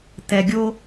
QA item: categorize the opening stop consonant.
plain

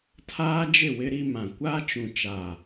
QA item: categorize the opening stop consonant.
aspirated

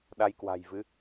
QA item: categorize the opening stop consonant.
implosive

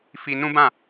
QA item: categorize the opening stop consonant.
plain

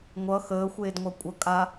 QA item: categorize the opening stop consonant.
plain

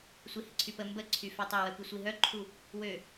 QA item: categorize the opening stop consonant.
click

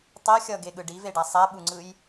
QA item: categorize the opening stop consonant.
plain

